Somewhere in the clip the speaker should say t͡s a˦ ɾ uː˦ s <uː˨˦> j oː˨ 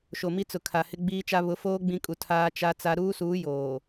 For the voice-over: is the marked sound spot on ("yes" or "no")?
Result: yes